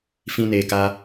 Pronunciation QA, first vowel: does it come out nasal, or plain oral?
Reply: nasal